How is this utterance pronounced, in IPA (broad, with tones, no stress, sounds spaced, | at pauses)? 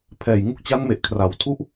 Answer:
pʰ ɛː˨˩ j ŋ u˦˥ k̚ t͡ɕ a˦˥ n m e˨˩ ʔ kʰ r a˩˦ w tʰ u˥˩ ʔ